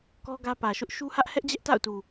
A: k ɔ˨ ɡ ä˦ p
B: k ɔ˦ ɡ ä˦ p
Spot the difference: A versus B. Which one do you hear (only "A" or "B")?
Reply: B